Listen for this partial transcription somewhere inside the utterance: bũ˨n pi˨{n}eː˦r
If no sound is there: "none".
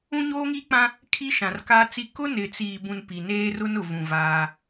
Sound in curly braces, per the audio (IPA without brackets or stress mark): n